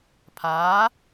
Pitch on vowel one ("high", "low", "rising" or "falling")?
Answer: rising